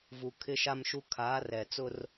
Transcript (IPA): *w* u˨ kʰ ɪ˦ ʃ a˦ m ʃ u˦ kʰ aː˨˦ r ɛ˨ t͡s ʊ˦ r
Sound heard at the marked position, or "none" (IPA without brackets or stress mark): v